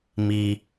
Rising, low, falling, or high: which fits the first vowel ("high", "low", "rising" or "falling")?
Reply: high